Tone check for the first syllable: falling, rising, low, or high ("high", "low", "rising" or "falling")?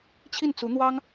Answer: falling